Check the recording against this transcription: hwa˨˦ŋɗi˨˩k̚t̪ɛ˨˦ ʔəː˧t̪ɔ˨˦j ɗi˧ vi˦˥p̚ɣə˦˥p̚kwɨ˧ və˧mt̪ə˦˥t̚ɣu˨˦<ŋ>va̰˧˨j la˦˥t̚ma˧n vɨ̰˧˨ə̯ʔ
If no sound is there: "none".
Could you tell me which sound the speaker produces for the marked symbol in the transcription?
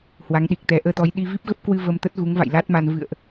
ŋ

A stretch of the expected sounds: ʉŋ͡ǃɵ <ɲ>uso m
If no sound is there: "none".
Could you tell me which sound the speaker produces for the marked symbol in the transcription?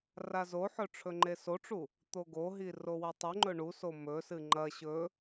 ɳ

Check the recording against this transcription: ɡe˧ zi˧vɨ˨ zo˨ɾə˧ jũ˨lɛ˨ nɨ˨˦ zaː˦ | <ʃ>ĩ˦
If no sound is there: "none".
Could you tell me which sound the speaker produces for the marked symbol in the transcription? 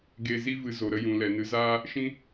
ʃ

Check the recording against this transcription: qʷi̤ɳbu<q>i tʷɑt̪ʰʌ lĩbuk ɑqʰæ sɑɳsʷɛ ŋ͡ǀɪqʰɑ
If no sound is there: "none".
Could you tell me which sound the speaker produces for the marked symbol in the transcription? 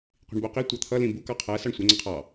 q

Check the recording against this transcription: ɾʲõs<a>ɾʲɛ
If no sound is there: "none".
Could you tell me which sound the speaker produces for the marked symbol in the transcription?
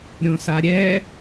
a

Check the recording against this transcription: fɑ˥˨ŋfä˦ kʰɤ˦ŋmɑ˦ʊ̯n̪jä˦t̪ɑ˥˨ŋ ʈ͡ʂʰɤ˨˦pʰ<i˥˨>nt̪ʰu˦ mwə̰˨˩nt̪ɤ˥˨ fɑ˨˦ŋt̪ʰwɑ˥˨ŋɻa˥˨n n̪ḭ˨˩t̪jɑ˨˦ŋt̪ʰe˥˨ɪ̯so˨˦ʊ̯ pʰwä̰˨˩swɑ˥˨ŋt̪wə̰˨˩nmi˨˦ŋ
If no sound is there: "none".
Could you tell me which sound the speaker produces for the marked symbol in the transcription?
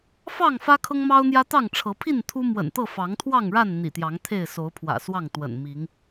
i˥˨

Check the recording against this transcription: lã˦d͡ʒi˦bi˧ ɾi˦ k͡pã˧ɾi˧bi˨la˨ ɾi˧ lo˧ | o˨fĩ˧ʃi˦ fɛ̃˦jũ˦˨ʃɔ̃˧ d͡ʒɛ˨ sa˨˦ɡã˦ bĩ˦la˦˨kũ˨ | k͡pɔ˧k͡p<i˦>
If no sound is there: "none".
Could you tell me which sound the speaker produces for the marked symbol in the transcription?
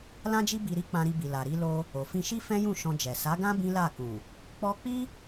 i˦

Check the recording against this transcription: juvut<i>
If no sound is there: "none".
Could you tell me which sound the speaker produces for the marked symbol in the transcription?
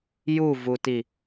i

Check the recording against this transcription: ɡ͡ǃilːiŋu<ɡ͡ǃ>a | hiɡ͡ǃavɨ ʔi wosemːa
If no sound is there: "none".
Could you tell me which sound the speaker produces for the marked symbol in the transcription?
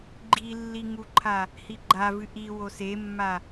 ǃʰ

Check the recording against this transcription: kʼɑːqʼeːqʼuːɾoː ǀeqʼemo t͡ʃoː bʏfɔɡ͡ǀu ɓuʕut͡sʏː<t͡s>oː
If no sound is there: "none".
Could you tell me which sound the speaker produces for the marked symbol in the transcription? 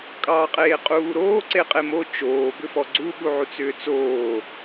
t͡s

